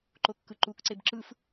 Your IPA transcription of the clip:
ǃ o kː ɯ ǃ u k ǀ e b ǁ ɯ f

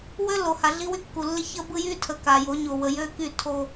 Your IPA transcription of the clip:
w ø˦ lː o˨ h a˨ ɮ i˦ w y˦ kː u˨ lː ɪ˦ ç ə˦ b ɯ˦ j y˦ tʰ ə˨ k a˨ j o˨˦ ɲ o˨ w ə˨ j ø˦ k y˦˨ tʰ o˦

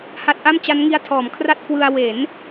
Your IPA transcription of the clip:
h a˦˥ t̚ ʔ a˥˩ m t͡ɕ a˦˥ n ŋ i˦˥ a̯ tʰ ɔː˩˦ m kʰ r a˥˩ t̚ k w ɯ˧ a̯ w e˩˦ n

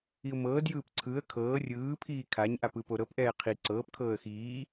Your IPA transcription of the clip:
i ʊ̯ m ɤː d j ɯː p ǀʰ ɯ ə̯ kʰ ɤː rʲ ɯː pʰ iː kʰ a ɲ ʔ a p ɯ p o ɾ ɤ p ʔ ɛː qʰ i ǀ ɤː p kʰ ɤː ə̯ x iː

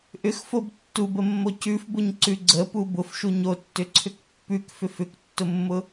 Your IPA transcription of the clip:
ʔ ʏ x f o b tː u b ə mː o c ʉ f b ʊ ɲ ǀ ʉ ɡ͡ǀ ə p u b ʊ f ʃ u ɲ o tː ʏ ǀʰ ʏ k pː ʉ k f ʏ f ʏ k tː ʊ mː ʊ

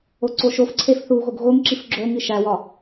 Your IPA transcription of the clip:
o ǀ o ʃ o f ǀʰ e f θ u ɣ o ɡ ɣ o ŋ ǁ i f ɡ͡ǁ o ŋ i ʃ æ w ɒ

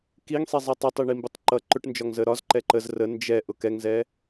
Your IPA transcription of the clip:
k i ŋ sˤ i zˤ ɛ tˤ ə tˤ i ɳ i m b ʊ tˤ ǃ ʌ ǃ ʊ ʈ n d͡ʒ ɒ ŋ z ə ɾ ɒ z ǃ ɛ ǃ ə z r ə n d͡ʒ ɛ ʔ ʊ k ɛ ŋ z ɛ

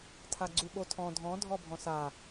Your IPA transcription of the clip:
tʰ a ɡ͡ǀ u ɓ o tʰ ɔ̃ dʱ ɔ̃ dʱ ɔ bʱ ɔ̃ s a

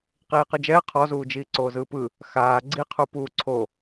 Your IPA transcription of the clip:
q iː q ɯ d͡ʒ ɛː qʰ ɔ z uː d͡ʒ iː ǀ oː z ɯː p ɯ | x aː ɡ͡ǀ i qʰ u p uː ǀʰ o

